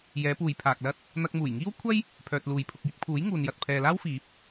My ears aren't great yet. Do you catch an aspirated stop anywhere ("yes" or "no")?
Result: yes